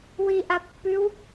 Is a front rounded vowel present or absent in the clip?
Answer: absent